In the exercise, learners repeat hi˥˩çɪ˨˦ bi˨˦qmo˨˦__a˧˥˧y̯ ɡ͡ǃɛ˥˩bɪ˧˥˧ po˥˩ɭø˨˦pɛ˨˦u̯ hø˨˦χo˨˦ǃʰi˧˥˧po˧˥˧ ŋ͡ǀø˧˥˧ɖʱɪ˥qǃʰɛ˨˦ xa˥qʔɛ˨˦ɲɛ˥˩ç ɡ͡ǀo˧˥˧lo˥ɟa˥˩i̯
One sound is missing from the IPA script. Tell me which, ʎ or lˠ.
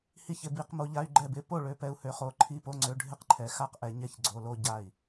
ʎ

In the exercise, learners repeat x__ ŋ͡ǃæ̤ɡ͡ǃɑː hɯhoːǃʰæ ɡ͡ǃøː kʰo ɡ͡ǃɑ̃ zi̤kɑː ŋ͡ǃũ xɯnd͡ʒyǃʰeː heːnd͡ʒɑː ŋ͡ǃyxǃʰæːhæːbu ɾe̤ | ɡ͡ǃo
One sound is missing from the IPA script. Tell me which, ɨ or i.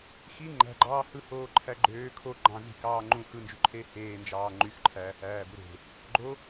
i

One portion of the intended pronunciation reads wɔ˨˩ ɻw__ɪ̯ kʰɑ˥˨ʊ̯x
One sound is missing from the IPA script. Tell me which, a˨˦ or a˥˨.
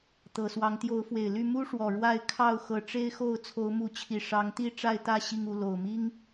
a˥˨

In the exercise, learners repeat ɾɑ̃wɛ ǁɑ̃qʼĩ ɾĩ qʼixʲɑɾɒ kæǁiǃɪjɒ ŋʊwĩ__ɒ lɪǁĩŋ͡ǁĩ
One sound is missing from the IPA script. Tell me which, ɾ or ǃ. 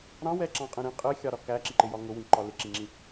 ǃ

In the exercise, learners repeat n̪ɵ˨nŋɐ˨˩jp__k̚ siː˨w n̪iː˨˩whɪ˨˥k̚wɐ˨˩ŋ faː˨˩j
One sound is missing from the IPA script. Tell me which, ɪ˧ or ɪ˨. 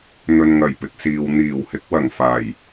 ɪ˨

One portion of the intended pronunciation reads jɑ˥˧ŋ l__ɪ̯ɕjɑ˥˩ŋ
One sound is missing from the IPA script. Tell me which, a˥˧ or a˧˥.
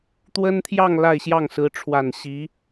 a˥˧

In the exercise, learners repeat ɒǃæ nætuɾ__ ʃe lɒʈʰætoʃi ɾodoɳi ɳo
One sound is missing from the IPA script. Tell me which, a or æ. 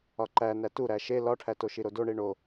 æ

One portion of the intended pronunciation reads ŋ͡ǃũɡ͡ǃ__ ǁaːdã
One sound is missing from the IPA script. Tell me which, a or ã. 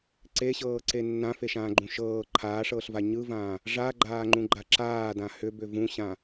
a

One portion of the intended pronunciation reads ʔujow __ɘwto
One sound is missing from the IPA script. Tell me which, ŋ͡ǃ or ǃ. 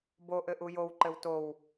ǃ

